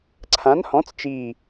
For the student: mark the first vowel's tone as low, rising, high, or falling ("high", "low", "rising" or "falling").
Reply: rising